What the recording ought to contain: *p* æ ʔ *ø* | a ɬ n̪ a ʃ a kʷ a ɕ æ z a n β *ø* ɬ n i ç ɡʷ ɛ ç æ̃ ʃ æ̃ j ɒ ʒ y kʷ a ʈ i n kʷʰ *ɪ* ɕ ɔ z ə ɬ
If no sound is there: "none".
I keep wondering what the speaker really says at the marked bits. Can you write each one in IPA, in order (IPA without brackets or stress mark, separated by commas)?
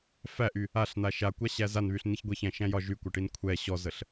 f, y, y, ɛ